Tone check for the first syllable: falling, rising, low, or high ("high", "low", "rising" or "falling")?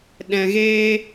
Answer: low